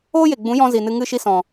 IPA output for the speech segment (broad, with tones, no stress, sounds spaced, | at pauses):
oː˦ j e˨ ɡ͡b ũ˨˦ j ɔ̃˧ z i˨ n ɨ˧ ŋ ɨ˦˨ ʃ i˦ s ɔ̃˨